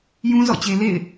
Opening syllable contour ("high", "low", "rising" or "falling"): high